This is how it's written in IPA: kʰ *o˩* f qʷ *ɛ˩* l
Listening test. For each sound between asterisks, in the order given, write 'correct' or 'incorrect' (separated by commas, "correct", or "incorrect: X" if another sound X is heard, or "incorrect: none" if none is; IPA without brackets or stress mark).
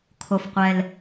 correct, correct